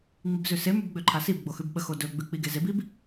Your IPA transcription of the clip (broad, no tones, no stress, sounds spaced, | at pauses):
ŋ͡m i b z ʉ s e m ʉ b ɡ͡b ø ǃʰ a s i b ɡ͡b o x ʉ b ɓ ə x o d ɵ ɡ͡b ʉ k͡p i ɡ e z e b i b